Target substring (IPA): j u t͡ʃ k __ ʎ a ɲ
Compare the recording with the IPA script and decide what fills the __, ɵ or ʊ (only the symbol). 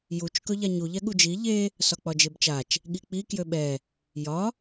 ɵ